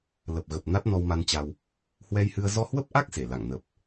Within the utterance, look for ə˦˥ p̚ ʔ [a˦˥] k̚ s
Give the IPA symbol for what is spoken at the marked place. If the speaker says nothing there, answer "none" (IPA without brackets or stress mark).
a˦˥